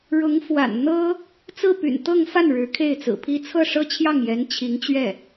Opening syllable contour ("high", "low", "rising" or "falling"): rising